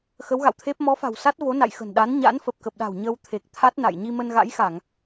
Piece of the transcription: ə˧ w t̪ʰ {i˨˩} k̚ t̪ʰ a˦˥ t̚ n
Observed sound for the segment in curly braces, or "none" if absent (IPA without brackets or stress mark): e˨˩